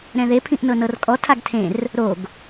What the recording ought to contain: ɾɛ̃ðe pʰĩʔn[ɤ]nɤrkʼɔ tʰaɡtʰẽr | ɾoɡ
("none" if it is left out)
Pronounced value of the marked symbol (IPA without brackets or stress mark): ɤ